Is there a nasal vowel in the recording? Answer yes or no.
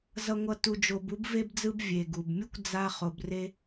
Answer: no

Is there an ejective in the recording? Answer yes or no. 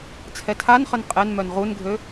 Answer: yes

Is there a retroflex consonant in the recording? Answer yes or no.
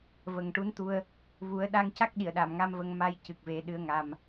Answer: yes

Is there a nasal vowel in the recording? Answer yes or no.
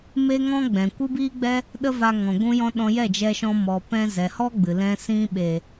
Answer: yes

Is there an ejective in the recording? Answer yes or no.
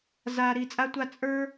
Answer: yes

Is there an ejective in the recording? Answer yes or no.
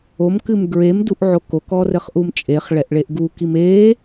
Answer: yes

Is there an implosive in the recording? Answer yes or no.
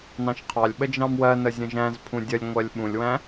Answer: yes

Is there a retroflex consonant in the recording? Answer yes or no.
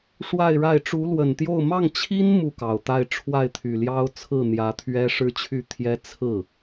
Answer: yes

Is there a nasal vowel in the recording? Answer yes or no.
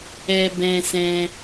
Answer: yes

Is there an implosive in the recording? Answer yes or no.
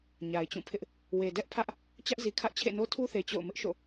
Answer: no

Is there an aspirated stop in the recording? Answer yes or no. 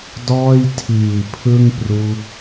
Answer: yes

